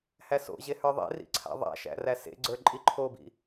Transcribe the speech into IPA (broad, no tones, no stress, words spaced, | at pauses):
hæso̰ʑe hə˞ðˤḛrḭ ǀʰa̰ðˤa̰ʃæ̰ ræsḛɡ͡ǀə˞ ǃʼiǃʰobḭ